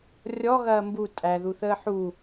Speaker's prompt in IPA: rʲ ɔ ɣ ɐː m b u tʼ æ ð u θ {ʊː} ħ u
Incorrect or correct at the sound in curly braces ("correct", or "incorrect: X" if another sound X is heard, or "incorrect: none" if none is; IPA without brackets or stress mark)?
incorrect: əː